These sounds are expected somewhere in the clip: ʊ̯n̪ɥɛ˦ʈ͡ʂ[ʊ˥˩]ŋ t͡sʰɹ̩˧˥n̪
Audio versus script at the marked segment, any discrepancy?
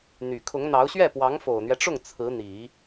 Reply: no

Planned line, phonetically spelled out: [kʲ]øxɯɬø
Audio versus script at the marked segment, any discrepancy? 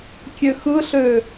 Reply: no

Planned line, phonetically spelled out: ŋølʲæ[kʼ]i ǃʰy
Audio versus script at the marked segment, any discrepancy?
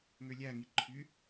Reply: yes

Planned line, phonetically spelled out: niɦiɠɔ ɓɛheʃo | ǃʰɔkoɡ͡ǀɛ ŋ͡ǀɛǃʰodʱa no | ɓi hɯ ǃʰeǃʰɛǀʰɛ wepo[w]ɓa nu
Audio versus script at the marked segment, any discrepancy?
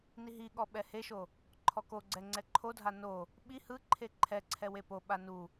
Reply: yes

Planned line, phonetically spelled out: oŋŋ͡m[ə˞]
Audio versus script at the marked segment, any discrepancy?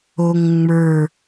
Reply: no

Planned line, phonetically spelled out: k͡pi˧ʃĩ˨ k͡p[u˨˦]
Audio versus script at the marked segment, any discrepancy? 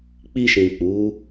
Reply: no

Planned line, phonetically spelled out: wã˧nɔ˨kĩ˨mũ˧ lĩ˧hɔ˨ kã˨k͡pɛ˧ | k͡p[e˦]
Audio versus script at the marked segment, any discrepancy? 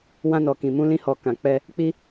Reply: yes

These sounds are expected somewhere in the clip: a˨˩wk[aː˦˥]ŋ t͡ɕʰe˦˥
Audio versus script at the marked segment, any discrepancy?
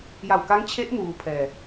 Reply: yes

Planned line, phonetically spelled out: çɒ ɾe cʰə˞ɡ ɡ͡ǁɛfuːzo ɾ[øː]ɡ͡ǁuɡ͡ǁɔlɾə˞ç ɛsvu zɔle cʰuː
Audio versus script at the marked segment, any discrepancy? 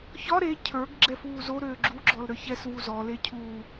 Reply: no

